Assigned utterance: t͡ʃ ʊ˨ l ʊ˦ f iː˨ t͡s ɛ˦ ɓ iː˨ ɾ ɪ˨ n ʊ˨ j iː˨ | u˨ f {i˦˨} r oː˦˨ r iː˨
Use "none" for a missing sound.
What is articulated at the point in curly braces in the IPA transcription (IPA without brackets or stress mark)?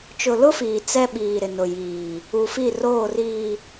i˦˨